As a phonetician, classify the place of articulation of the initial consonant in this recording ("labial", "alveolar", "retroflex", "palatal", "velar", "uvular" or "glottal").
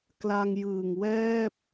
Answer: velar